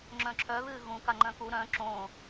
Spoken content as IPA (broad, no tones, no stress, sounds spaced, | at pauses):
ŋ͡ǁ œ̃ ǁʰ œ β ɨː ɣ ũ k a ŋ͡ǃ œ̃ k u ɾ œ̃ ǁ õ